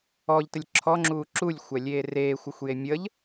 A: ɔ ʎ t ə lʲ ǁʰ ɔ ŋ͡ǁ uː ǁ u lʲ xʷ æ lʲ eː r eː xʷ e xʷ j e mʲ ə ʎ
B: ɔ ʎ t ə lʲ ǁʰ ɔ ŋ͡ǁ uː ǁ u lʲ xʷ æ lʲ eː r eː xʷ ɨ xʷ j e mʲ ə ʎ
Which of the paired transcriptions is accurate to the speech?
B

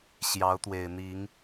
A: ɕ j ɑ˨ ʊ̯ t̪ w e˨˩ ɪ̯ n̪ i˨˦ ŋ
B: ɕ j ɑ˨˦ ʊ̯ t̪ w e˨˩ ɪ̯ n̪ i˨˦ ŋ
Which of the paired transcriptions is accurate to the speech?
B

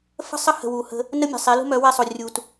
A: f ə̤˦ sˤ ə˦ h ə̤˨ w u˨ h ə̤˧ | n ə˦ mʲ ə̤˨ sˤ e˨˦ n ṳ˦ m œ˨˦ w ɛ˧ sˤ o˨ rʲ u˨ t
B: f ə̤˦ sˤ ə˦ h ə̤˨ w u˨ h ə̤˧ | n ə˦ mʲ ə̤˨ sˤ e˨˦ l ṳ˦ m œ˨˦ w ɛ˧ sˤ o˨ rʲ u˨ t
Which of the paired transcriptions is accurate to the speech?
B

